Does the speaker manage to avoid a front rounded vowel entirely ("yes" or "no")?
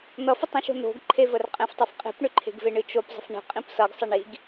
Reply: no